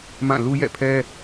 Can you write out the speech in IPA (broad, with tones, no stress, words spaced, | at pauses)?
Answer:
mã˦˨ lu˦jɛ̰˦˨pʰɛ˦